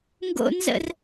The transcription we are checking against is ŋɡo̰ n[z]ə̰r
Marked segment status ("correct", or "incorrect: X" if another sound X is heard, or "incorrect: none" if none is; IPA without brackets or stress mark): correct